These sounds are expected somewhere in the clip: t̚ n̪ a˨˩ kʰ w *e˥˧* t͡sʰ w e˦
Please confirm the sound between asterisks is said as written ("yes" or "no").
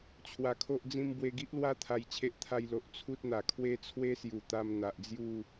yes